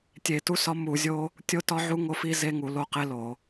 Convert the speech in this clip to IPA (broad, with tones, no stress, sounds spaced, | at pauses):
tʲ e˧˩˧ t u˦ s ɒ˦ m u˧˩˧ zʲ o˦ | tʲ o˦ t ɒ˦ ʕ u˦ ŋ o˦ f i˦ z e˦ ŋ u˧˩˧ l o˦ q e˦ l o˧˩˧